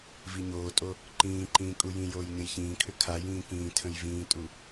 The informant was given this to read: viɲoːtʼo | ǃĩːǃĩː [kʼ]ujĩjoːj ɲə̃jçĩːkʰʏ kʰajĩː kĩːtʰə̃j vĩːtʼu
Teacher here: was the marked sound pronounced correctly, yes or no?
yes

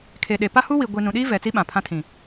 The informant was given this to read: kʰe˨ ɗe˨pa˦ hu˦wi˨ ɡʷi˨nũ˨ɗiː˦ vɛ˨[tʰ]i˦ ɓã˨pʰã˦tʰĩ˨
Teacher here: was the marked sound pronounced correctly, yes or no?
no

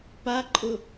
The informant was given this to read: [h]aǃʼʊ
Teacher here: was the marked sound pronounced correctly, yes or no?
no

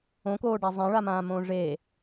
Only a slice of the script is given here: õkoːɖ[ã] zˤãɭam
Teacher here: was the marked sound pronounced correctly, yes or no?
no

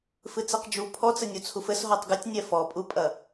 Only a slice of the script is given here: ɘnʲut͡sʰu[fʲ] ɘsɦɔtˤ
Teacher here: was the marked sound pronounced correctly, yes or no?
no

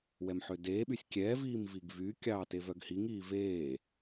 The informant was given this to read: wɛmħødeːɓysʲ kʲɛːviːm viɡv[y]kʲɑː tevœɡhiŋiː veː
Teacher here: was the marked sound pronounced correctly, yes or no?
yes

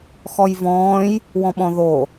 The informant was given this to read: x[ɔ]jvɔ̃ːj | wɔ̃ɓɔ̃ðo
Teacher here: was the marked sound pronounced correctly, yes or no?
yes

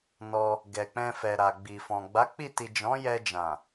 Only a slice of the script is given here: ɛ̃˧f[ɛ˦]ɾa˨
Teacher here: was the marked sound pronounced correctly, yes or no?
no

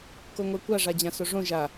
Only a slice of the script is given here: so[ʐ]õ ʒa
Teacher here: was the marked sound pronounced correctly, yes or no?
yes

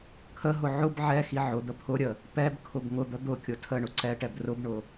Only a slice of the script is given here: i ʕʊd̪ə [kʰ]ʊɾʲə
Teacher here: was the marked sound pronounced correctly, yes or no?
no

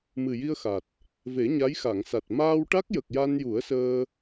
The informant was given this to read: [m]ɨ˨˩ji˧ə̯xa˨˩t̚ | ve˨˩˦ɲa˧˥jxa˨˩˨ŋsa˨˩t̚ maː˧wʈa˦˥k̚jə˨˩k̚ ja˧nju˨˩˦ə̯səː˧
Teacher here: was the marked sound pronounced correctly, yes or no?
yes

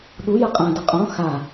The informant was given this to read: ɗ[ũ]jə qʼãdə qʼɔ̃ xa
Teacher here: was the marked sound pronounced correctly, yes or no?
no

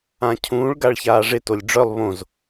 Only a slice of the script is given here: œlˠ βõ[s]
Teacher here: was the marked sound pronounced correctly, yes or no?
no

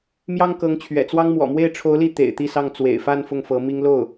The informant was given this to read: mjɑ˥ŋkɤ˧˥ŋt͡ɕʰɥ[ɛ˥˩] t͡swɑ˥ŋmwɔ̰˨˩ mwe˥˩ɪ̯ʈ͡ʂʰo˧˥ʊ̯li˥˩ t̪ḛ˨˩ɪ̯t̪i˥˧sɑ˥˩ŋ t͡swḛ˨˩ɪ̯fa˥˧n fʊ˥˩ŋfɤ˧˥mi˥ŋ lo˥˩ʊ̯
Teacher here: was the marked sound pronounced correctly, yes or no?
no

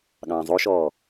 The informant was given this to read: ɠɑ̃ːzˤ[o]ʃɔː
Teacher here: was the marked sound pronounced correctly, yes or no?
yes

